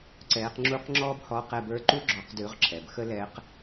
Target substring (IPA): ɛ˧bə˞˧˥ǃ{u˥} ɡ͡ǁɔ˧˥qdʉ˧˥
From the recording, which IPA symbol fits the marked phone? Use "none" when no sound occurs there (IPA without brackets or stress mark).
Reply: u˥